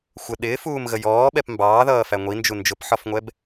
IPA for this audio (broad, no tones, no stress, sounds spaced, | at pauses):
xʷ ə ɗ ɪː f uː m ɣ ə j ɔː ɓ ɛ p m b ɑː ð ʌː f æ ŋʷ i n d͡ʒ u n d͡ʒ ʊ p ħ ɒ f ŋʷ ɛ b